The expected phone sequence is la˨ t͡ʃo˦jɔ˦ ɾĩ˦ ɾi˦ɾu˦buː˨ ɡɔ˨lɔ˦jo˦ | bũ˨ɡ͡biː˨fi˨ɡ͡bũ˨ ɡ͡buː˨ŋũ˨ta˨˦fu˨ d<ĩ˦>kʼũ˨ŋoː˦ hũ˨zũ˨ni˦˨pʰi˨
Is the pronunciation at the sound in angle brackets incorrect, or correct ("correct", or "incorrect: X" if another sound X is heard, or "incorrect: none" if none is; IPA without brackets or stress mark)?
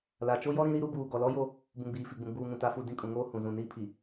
correct